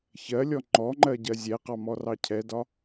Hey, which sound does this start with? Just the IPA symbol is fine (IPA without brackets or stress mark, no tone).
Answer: ç